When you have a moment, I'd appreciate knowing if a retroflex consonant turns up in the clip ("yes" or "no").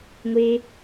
no